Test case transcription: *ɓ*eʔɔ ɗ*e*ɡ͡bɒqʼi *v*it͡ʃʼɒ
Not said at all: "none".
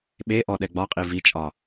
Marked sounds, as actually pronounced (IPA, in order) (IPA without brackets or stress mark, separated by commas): ɓ, ɛ, v